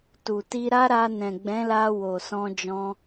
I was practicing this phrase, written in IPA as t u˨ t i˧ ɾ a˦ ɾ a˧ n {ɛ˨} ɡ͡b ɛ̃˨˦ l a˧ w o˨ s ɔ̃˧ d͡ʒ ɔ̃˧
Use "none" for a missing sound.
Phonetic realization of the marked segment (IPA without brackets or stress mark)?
ɛ̃˨